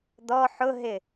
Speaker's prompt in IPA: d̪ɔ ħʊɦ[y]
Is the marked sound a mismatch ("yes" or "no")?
yes